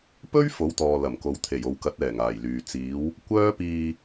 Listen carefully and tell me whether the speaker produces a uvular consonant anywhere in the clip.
no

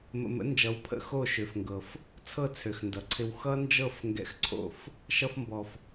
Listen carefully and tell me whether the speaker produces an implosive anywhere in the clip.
no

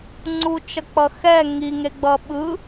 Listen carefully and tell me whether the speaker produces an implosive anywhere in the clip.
yes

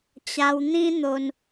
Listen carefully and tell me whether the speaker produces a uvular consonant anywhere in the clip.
no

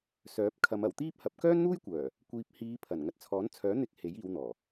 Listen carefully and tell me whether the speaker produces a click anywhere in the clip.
no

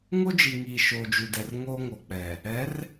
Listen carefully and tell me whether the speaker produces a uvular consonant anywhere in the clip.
no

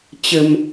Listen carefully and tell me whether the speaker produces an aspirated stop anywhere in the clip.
no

